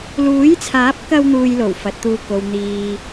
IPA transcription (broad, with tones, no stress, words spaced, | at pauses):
luː˨˥jt͡sʰaː˨˥p̚kɐ˧w n̪uː˧jlo˨˩w fɐ˨˥t̚t̪uː˧ ko˨w n̪iː˨